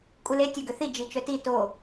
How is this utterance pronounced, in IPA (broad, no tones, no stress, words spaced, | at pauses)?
kʼule tʲœɡøθi d͡ʒit͡ʃœti to